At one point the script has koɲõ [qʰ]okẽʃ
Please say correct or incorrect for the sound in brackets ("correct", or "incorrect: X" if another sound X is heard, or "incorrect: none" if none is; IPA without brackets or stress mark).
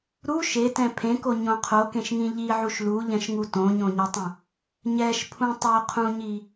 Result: correct